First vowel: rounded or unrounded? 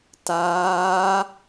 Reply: unrounded